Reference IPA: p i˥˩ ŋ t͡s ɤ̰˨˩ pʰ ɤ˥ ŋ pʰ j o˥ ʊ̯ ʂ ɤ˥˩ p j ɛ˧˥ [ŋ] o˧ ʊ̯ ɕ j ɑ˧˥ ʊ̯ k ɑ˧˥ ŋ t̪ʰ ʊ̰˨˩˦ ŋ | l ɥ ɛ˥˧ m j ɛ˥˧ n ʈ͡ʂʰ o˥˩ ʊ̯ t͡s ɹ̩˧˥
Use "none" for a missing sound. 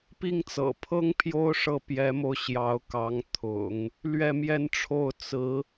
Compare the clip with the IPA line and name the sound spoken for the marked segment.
m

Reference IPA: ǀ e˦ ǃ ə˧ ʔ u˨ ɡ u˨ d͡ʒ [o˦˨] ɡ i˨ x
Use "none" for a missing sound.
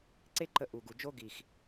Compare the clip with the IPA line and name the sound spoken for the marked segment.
o˦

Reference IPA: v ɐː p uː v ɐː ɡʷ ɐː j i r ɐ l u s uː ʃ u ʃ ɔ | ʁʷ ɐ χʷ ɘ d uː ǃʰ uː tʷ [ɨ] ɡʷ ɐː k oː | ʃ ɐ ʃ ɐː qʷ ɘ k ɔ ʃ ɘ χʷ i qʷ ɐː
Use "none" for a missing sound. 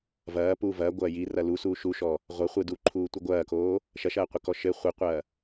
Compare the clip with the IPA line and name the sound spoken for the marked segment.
ɨ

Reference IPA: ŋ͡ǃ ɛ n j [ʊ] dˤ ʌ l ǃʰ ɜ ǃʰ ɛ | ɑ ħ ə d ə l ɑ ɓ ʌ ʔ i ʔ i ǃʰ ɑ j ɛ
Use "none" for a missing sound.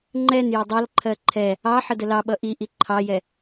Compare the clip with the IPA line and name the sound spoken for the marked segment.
ʊ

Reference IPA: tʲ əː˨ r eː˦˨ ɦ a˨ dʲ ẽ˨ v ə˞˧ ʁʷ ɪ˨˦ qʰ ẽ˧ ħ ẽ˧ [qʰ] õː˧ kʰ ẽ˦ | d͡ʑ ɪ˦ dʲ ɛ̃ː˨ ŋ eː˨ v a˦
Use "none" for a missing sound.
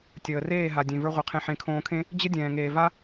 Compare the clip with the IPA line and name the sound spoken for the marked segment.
kʰ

